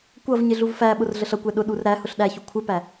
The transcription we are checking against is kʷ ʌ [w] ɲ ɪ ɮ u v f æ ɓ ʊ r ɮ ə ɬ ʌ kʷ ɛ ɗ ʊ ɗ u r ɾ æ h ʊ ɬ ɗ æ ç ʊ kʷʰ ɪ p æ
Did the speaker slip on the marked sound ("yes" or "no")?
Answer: yes